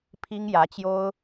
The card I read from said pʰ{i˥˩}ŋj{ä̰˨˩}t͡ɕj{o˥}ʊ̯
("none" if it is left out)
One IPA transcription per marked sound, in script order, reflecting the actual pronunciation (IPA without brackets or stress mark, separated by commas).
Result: i˥, ä˧˥, o˥